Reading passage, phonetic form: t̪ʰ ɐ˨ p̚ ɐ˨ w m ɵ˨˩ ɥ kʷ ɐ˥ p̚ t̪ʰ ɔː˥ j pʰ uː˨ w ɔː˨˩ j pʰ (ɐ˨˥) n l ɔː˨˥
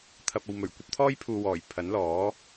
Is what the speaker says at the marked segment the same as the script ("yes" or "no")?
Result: yes